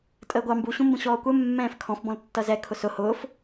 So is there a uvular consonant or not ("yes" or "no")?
no